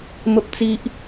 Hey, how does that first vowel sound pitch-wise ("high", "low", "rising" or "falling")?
high